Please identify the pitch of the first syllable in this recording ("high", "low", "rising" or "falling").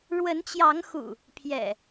rising